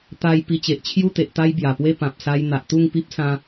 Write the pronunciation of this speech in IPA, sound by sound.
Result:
t̪a˧j pi˧t͡ɕe˨ʔt͡ɕʰju˥˧t̪e˨ʔ t̪a˦jbja˨˩pwe˥˧ pã˨p̚sa˧j n̪a˨ʔt̪u˥˧ŋpi˦p̚ sã˦

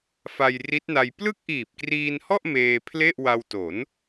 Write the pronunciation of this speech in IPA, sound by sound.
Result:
fa˧j ri˦˥t̚na˧j plɯ˥˩k̚ʔiː˨˩p̚kriː˧nhɔ˥˩ʔ meː˧ pʰle˥˩ʔwa˧w to˩˦n

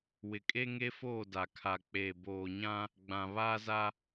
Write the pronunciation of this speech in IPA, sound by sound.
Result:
wɪ˨kʼe˦ŋe˦foː˦˨ da˨kʰa˨ k͡pe˨ boː˨ɲã˦ | ɡ͡bã˨ βaː˦za˦

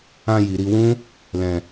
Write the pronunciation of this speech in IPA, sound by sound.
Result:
ã˧ji˨ɾi˧wũ˦ | lɛ̃˧

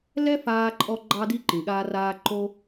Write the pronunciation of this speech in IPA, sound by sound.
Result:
lɛ˥faː˧ ǃʼɔ˧ ɡ͡ǃɑ˧di˧ ǃĩ˩ɠaː˧ raː˧ ǃo˧

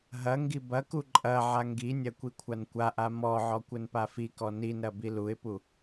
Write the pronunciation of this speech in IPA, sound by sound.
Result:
ɦɐ ŋɡibɐku ǃʼɐ ʕaŋɡinʲɐ kʷikʷʰankʷaʔa mɔʕɔ kʷɘnpafikɔ ninɾɐ biluɪ̯pu

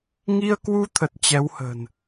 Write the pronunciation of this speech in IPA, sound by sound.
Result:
ŋi˧ə̯kwu˧t̪ʰə˨˩t̚ t͡ɕɛ˨˦whə̤ː˨˩n

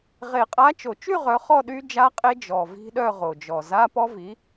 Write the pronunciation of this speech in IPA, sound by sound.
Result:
ʁe˨˩˦qʼa˨˥t͡ʃo˨˩t͡ʃy˥˧ ʁœ˨˥χɔ˥˧ ɗy˦˥d͡ʒa˦˥ qʼe˦˥d͡ʒɔ˨˩ vi̤˦˥ɗœ˥˧ʁo˨˩d͡ʒɔ˨˩ za˧˥˧pɔ˦˥ vi˨˥

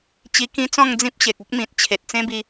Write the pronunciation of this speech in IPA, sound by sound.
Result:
t͡ɕi˧kĩ˦t͡sɔ̃˥˧ŋ d͡zĩ˦p̚ ɕe˨k̚o˦k̚mĩ˨t̚ t͡ɕʰe˨t̚t͡sẽ˦bi˧

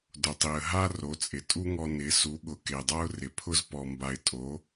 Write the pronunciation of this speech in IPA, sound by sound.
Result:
dʊ˨tˤi˨ə̯ ɦa˦ ro˨˦t͡sʼɪ˨tʼu˦ŋɔ˧ nɪ˨˦su˨˦ɠʊ˨ ke˨dˤa˦ʊ̯rɪ˨pʰʊ˦z pɔ˧mba˧ɪ̯ tʼo˨˦

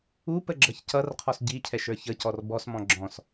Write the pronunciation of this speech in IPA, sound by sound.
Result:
upəɡ͡ǁʌç cʌrqʰɔs ɟicʰɛʃə˞ çəcɔr bɔsmɔ̃ ɡ͡ǁɔ̃s

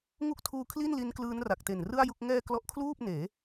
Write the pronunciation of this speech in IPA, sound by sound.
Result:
ŋu˥˩k̚tʰuː˧kʰli˥˩nli˦˥n klɯː˦˥nra˨˩k̚te˨˩n rɯ˥˩a̯ju˥˩k̚ ŋɛː˧ klɔ˦˥ʔkʰluː˥˩p̚neː˩˦

